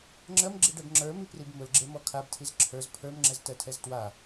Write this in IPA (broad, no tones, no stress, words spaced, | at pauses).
ŋ͡ǁɜmɡ͡ǁiɖɛb ŋ͡ǁə˞miprib mʊlɡ͡ǁemɔ kʰabtʰiz ǁʰə˞z pʰə˞mŋ͡ǁɛztɜtʰɛz twa